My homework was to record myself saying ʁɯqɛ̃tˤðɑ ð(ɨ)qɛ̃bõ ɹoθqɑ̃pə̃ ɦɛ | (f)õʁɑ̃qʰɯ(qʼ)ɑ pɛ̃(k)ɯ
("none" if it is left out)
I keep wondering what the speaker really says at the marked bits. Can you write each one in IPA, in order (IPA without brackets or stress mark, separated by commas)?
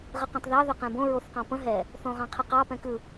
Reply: ʏ, θ, q, k